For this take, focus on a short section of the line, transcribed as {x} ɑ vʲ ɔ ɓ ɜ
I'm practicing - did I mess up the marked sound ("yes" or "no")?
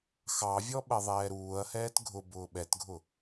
no